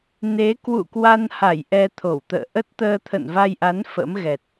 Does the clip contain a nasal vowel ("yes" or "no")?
no